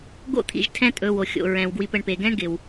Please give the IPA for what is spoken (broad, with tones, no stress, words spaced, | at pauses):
ɡo̰˥t̪ʰḭ˨ʒ tʰɛ̃˦tʼɵ˨wo˩xʲo̰˩ ɹɛ̃˩wɡwi˨p ə˨ɳpe˩ɡɛ̃˥ɳɡɪ˩w